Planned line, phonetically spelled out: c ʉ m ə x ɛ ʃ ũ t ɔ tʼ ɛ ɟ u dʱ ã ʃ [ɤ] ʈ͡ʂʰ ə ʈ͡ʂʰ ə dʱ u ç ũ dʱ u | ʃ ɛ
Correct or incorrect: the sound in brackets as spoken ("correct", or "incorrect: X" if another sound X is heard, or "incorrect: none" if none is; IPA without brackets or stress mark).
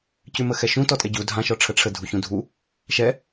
incorrect: ɔ